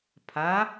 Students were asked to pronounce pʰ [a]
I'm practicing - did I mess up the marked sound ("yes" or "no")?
no